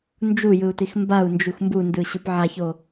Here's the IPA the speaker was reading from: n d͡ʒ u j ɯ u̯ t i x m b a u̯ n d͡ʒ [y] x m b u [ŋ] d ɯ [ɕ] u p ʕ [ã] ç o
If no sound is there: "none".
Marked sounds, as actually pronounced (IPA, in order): u, n, ɕ, a

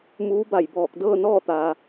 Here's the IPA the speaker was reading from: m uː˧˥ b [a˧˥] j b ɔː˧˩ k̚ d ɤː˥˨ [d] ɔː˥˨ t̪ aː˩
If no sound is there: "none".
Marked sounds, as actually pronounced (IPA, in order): a˧˩, n

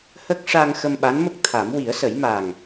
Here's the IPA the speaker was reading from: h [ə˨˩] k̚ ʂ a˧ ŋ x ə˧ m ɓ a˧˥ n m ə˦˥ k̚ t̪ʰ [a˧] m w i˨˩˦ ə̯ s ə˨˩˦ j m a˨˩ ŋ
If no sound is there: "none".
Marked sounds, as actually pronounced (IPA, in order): ə˦˥, a˨˩˦

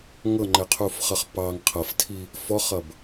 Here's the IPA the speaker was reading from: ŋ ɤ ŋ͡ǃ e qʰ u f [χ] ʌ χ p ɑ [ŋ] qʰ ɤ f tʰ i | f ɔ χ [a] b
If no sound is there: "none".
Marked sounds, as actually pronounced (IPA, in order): χ, ŋ, ʌ

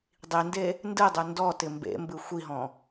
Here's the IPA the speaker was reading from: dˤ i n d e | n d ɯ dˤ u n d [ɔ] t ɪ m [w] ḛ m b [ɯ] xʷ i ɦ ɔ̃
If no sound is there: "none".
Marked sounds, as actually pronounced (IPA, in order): ɔ, b, ɯ

